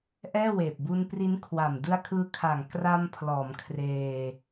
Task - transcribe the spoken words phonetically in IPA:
ʔ ɛː˥˩ w eː˨˩ p̚ b u˧ n p r i˦˥ n kʰ w a˨˩ m d ɯ˧ a̯ kʰ ɯː˧ kʰ aː˨˩ ŋ k r a˧ m pʰ l ɔː˩˦ m kʰ r eː˧

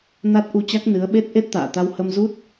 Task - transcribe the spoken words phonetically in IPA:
n a˦˥ t̚ ʔ u˧ t͡ɕ a˦˥ k̚ n ɨ˨˦ ə̯ ɓ e˦˥ t̚ ʔ e˦˥ t̚ t̪ a̰ː˧˨ t̪ a˧ w h ə˧ m z u˦˥ t̚

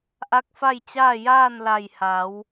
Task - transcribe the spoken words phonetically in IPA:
ʔ a˧˥ k̚ f a˥˨ j t͡ɕ aː˥˨ j aː˥˨ n l a˧˩ j h a˩˧ w

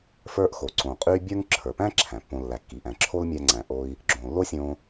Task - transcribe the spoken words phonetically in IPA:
f ə˞˧ ʔ x o˩ ǀ õ˩ qʼ y˧ bʲ ə˞˥ ŋ ǁʰ ə˞˩ p æ̃˥ ǁʰ æ̃˩ pː õ˧ lː æ˩ kː i˩ ʔ æ̃˩ ǁʰ o˥ l mʲ æ˧ ŋ͡ǀ æ̃˩ ʔ o˧ i̯ | ɡ͡ǁ õ˩ lː o˥ sʲ õ˧

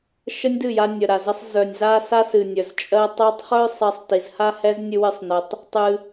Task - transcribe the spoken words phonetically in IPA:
ʃ ə˦ nʲ d ɨ˦˨ j a˧ nʲ ə˨ ɾ a˨ z ə˧ sˤ z œ˨ nʲ z a˦ s a˦ s ɨ˨ nʲ œ˨ z t͡ʃʼ ɜ˧ tˤ ɜ˧ tˤ χ œ˦ sˤ ɜ˧ sˤ t i˨ z h a˦ h ɛ˦ z nʲ ɨ˧ w ɨ˧ sˤ n ə˧ tˤ | tˤ ɨ˧

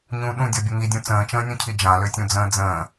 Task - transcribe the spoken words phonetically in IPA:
ɲ ũ ɗ ũ dʲ ɔ bʲ ə ŋ i dʲ ũ t͡s ə̃ː t͡ʃ ə̃ː nʲ ũ cʰ i d͡ʒ ã l ø tʲ ũ d͡z ə̃ː d͡z ə̃ː

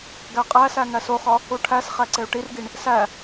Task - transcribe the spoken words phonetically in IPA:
ɡ æ qʼ æ s æ ŋ æ s o χ ɒ | u ʈʰ æ s χ æ ǀ e u̯ ʈ i r ɡ i ɳ | s æ

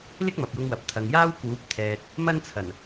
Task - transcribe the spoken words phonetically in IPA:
l ɪ˥ k̚ m ɐ˨ p̚ j ʊ˧ ŋ w ɐ˨ p̚ t̪ʰ ɐ˨ ŋ j aː˥ w k uː˨˥ p̚ t̪ʰ ɛː˨ t̚ | m ɐ˥ n t͡sʰ ɐ˨˩ n

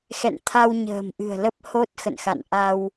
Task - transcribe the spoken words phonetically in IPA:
x ɛ̰˧˨ n t̪ʰ a˧ w ɲ ə̤ː˨˩ m ʔ ɨ̤˨˩ ə̯ l ə˦˥ p̚ h o˦˥ t̚ x ə̰˧˨ n x a̰˧˨ n ʔ a˧ w

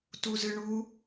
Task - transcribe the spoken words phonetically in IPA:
t u z ɨ ɳ u

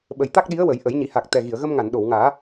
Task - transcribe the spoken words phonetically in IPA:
ɓ ə˨˩ j t̪ a˦˥ k̚ ɗ i˧˥ ə̯ w ə˨˩˦ j ʔ ə˨˩˦ j ɲ i˨˩˦ h a˨˩ k̚ t̪ ɛ˨˩ ɣ i˨˩˨ ə̯ ɣ ə˧ m ŋ a˨˩˨ n ɗ o˨˩˨ w ŋ aː˨˩˦

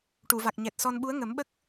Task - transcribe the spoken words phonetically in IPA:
ʈ u˨˩˨ v a˨˩ k̚ ɲ ɛ˨˩ t̚ s ɔ˧ n ɓ u˧˥ ə̯ ŋ ə˨˩˦ m ɓ ə˦˥ k̚

